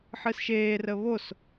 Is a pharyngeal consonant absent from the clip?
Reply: no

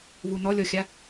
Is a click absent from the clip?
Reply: yes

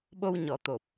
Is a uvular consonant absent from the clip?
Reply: yes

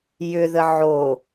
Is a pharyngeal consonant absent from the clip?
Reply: no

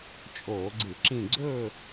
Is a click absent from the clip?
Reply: no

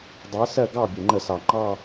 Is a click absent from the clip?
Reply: no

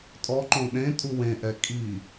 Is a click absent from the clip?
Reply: no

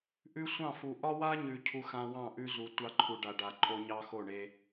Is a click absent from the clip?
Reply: no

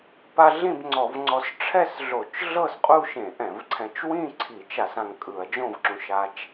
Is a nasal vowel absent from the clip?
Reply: no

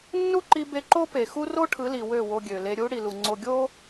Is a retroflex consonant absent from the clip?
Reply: no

